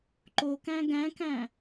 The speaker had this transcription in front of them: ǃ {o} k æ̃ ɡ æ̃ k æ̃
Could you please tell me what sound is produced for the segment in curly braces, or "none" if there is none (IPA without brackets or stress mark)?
o